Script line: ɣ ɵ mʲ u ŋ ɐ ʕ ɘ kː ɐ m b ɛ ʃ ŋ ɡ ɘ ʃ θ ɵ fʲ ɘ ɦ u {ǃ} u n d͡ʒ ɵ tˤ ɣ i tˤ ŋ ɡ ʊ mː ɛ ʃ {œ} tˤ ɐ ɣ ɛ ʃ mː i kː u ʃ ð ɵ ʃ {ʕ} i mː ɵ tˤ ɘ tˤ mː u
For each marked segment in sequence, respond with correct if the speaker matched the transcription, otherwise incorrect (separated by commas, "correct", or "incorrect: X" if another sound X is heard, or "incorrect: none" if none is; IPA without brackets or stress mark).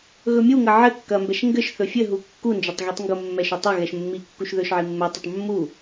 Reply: incorrect: kː, incorrect: ɵ, correct